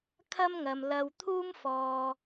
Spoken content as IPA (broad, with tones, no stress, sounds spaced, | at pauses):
kʰ ɐ˥ m ŋ ɐ˨ m l ɐ˧ w t̪ʰ uː˥ m f ɔː˨